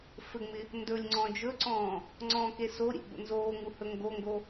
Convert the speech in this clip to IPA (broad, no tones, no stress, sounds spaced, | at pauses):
f ɘ ŋ͡m ɪ | n d ɵ lʲ ŋ͡ǀ ɔ̃ d͡ʒ ɵ ǀ ɔ̃ː | ŋ͡ǀ ɔ̃ k e s o ɾʲ ḛ ɡ͡b o̰ n z oː ŋ u h ɵ ŋ ɡ o ŋ ɡ o